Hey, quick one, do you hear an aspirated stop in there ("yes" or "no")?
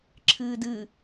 yes